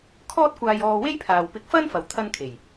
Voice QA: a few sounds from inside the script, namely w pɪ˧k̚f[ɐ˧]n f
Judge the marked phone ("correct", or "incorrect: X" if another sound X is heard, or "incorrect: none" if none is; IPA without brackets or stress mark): incorrect: ɐ˥